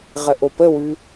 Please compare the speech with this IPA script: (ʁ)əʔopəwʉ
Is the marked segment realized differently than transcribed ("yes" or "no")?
no